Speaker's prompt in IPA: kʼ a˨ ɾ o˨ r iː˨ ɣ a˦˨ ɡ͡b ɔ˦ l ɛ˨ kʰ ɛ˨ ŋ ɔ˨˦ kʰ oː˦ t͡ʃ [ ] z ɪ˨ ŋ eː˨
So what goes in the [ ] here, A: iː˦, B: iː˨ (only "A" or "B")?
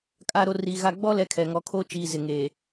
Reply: B